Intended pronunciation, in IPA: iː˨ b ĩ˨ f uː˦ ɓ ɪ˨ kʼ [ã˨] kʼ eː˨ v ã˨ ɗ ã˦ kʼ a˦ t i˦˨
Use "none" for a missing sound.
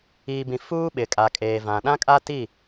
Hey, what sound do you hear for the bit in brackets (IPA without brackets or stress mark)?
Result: a˨